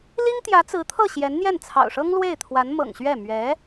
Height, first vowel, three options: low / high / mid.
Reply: high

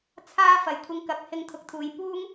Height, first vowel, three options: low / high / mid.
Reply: low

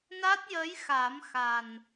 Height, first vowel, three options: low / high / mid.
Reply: low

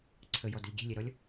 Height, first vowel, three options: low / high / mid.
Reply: mid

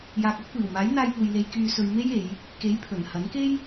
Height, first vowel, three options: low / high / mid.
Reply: low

